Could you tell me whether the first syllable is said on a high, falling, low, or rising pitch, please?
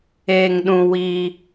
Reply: low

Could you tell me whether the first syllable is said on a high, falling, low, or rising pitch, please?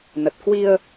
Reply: low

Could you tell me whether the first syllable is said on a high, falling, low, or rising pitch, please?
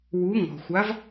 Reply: rising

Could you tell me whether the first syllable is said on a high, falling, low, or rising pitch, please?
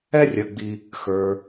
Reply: high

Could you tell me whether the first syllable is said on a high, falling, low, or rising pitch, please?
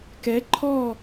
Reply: rising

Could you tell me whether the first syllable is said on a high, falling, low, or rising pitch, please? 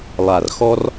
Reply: low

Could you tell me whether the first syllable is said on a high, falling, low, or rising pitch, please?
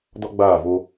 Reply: high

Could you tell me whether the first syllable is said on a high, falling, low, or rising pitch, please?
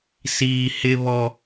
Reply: low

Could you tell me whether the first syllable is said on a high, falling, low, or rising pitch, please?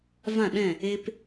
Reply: falling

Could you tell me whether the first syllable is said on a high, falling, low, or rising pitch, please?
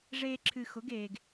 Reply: high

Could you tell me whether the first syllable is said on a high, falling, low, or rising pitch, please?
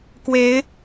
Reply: rising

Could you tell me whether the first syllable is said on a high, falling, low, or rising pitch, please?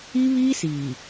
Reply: high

